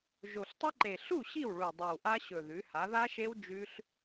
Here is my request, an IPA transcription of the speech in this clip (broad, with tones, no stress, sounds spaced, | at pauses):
ʒ o˨˩ ɬ tˤ ɨ˦˥ ǃ e˨˩ ɬ u˥˩ ɕ i˥˩ w ɭ u˨˩ dˤ ʉ˨˩ w ʔ a˦˥ ɕ ɵ˨˩ ð ʉ˩˧ h a˩˧ ð a˦˥ ʃ e˦˥ w d͡ʒ ʉ˦˥ ɬ